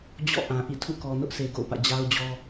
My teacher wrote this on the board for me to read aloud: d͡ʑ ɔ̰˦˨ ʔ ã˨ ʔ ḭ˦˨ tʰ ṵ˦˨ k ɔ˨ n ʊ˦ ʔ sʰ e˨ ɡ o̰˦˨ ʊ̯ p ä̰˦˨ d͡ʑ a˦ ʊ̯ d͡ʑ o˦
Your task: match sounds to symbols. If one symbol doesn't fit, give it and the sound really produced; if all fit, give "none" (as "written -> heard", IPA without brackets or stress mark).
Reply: o˦ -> ɔ˦